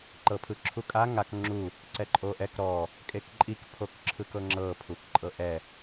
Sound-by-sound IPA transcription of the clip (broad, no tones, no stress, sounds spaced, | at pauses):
ǃ ɤ pʰ ɯ ǁʰ u kʼ a ŋ a k ŋ͡ǁ u | ǀ ɛ ǃʼ o ʔ ɛ k ɾ ɔ | kʼ e k ǃʼ i k pʰ o k ǁʰ ɯ k ɤ ŋ͡ǁ ɤ pʰ u k ǃʼ ɤ ʔ ɛ